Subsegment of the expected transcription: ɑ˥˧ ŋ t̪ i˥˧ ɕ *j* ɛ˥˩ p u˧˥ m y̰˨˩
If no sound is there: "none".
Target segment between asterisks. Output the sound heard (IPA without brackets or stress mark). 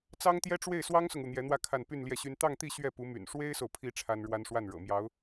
ɥ